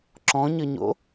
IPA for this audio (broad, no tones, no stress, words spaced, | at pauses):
ǁɔ̃ɲəɲo̰